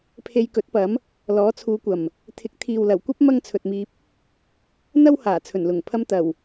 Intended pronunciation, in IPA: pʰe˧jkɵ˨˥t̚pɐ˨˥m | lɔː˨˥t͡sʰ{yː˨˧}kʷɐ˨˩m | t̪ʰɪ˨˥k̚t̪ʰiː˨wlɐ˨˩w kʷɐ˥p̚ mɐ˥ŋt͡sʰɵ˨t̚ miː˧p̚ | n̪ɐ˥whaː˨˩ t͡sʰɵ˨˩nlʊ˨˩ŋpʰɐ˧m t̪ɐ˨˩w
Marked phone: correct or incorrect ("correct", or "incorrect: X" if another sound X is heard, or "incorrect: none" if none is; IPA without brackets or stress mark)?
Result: incorrect: uː˨˧